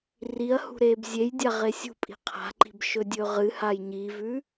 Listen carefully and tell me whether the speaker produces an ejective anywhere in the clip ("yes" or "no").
yes